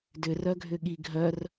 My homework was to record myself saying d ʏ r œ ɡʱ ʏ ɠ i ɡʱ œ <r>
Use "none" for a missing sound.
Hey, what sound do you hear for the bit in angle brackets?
r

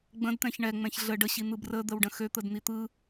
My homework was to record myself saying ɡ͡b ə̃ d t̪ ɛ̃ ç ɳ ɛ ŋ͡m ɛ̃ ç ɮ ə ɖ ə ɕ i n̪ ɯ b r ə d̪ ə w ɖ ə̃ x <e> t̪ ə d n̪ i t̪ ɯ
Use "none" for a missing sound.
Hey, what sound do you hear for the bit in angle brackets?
ø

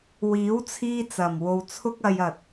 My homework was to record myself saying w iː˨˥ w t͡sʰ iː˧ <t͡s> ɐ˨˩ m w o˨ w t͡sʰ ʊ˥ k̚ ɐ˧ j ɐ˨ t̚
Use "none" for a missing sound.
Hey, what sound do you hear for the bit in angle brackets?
t͡s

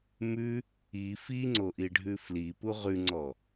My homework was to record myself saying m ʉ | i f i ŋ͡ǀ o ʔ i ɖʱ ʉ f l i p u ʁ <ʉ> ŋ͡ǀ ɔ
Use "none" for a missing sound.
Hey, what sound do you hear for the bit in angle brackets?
ʉ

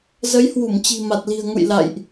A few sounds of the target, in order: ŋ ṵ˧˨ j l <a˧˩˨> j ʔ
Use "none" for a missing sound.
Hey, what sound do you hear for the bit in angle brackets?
a̰˧˨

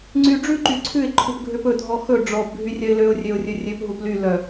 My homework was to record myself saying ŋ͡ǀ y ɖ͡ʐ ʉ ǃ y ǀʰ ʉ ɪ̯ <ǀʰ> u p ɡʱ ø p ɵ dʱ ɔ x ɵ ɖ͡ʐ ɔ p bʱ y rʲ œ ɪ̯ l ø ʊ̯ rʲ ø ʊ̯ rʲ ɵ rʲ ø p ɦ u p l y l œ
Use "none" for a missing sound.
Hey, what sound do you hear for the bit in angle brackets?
ǃʰ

